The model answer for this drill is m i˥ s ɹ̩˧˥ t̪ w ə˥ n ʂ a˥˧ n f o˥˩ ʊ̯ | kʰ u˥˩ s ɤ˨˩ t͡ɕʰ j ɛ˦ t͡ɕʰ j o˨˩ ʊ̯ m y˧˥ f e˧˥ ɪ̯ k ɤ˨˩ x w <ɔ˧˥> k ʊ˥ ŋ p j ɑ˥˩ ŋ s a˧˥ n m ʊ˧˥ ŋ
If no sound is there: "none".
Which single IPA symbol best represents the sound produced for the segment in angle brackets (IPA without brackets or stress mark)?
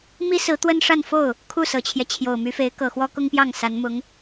ɔ˥